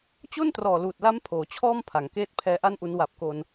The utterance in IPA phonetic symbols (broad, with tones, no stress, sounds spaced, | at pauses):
t͡ɕ o˥˩ n t r ɔː˨˩ l uː˨˩ t̚ l a˦˥ m pʰ oː˩˦ t͡ɕʰ ɔː˥˩ m pʰ a˩˦ ŋ k eː˥˩ t̚ pʰ ɛː˦˥ ʔ a˥˩ n ʔ u˦˥ n w a˨˩ p̚ k o˧ n